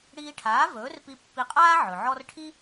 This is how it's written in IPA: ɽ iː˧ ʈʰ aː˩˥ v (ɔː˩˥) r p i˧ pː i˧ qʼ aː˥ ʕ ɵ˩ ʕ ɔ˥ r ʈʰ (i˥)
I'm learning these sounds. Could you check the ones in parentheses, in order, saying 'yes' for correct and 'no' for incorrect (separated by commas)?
no, yes